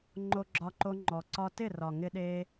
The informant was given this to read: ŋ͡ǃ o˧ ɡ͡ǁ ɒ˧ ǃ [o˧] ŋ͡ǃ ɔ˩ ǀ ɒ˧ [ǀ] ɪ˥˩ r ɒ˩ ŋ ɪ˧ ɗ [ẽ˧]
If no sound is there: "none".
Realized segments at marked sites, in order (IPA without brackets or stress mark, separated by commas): o˧, t, e˧